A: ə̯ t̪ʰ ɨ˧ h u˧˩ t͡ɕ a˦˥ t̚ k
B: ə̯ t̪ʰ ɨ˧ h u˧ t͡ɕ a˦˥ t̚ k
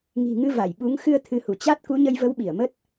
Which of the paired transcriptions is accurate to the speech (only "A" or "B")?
A